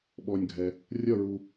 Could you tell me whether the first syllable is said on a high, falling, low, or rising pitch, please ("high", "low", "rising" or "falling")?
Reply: low